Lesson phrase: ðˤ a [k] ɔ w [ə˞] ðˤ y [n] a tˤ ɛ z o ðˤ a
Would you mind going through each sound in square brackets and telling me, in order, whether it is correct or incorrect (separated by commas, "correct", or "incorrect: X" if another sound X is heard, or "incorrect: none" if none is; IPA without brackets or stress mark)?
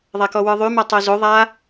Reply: correct, correct, incorrect: m